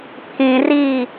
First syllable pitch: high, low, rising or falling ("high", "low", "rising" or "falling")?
low